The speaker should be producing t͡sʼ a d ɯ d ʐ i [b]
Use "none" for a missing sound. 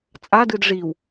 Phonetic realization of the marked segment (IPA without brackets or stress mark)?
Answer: w